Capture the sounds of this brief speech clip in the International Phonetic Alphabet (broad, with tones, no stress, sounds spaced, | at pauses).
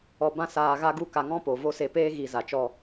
ɔ˧ b ã˦ s aː˧ ɣ a˦ ɡ u˦ k a˧ ŋ ɔ̃˦ p o˨ v o˦ s e˧ p eː˦ ɣ i˨ z a˨ t͡ʃ ɔ˧